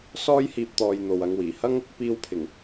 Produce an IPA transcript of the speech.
s ɔː˥ j h iː˧ p̚ t̪ ɔː˨ j n̪ o˨ w ɐ˨˧ ŋ w iː˨˩ h ɐ˥ ŋ | p iː˧ w pʰ ɪ˨˩ ŋ

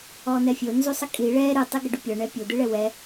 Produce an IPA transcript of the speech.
ɔ n̪ ɛ fʲ o n z u sˤ ə kʼ i ɭ ɛ ɾ ɨ tˤ i ɡ ə ɖ u pʲ ɔ ɳ ɛ pʲ o d̪ ɨ ɭ ɛ w ɛ

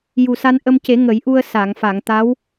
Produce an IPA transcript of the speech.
j u˨˩ s a˧ n ʔ ə˧ m c e˨˩˦ ŋ ə˨˩˦ j ʔ u˧ ə̯ s a˨˩˨ ŋ f a˨˩˨ ŋ t̪ a˧˥ w

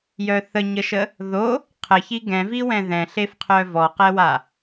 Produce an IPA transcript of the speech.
j œ θ ə ɲ ə ʃ ə | ð o | qʰ ə ç i ɡ ɛ̃ v i w ɛ̃ ð ɛ̃ ɬ e f qʰ œ v ɔ q ɛ w a

